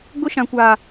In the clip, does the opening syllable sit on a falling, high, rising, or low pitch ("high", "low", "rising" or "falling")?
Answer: high